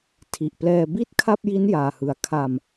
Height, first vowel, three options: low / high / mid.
high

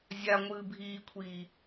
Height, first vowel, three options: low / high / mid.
low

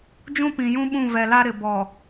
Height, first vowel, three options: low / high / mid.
high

